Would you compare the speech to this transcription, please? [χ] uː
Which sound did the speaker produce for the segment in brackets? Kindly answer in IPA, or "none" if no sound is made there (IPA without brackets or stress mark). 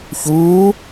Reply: ç